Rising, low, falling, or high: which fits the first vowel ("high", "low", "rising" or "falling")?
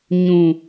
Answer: low